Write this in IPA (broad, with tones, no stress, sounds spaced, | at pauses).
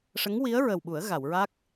ʂ ə˧˥ ŋ w i˧˥ ə̯ ɹ ə˨˩ w ɓ u˨˩˦ ə̯ ɣ a˨˩˨ w ɹ a˦˥ k̚